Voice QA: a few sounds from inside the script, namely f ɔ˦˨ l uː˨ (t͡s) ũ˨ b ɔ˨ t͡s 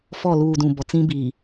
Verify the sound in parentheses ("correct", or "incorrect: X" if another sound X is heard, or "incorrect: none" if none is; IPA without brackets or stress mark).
incorrect: d